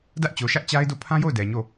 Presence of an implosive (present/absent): absent